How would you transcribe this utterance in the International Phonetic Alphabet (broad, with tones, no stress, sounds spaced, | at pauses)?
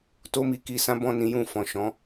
t o˦ m i˧ k i˧ s ã˦ b ɔ̃˦˨ n ĩ˨˦ j ũ˦˨ f ɔ̃˨ ʃ ɔ̃˨˦